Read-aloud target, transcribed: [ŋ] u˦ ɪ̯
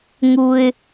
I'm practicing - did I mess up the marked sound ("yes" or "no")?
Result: no